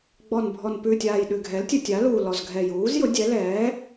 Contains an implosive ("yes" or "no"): yes